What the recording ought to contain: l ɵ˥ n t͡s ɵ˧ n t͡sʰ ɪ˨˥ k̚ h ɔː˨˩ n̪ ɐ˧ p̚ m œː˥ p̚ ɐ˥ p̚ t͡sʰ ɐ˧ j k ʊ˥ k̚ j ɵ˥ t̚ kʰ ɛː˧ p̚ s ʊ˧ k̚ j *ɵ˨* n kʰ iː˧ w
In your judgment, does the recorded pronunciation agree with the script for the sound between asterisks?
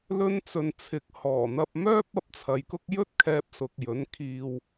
no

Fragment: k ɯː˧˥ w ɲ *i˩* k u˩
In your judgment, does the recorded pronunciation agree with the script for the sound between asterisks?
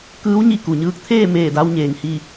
no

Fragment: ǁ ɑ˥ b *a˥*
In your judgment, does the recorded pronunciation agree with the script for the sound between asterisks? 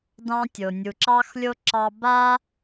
yes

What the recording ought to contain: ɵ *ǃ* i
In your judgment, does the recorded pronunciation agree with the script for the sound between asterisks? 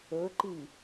yes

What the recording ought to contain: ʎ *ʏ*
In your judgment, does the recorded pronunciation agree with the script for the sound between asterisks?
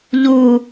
no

